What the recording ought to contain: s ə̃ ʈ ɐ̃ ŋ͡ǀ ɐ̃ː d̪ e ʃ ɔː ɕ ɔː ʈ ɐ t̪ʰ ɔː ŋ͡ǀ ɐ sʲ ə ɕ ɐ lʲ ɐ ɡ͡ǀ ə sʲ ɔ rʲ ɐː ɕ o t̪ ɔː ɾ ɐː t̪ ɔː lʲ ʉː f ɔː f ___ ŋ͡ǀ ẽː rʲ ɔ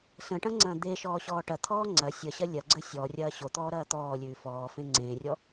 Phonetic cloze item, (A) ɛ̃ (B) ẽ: B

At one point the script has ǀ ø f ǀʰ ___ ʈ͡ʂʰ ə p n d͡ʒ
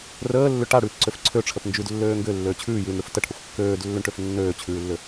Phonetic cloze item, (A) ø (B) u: A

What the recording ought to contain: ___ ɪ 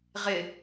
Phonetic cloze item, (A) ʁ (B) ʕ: A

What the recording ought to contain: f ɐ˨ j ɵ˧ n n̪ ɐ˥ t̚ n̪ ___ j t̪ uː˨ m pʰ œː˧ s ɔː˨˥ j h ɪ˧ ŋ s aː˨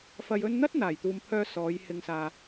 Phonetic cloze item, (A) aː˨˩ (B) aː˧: A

